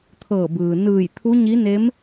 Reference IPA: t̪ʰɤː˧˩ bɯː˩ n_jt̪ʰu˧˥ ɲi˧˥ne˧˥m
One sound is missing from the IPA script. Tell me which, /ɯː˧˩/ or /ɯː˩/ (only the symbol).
ɯː˧˩